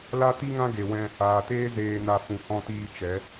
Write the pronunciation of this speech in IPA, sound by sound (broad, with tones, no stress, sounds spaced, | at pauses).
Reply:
l a˦ t i˦ ŋ ã˦ ɡ e˨ w ɛ̃˧ | aː˨ t eː˦ z eː˨ n a˨ f ũ˨ h ɔ̃˧ t iː˧ t͡ʃ ɛ˨˦